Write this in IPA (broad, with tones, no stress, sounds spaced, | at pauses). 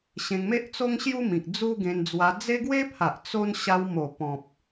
ɕ ẽ˧ ŋ m e˦ ʔ t͡s o˦ ŋ ɕ j u˦ m ĩ˨ k̚ d͡z u˦ ɡ ẽ˧ n d͡z w a˧ d͡z e˦ ɡ w e˦ pʰ a˨ ʔ t͡s o˦ n ɕ a˧ w m o˨˩ p ɔ̃˨ p̚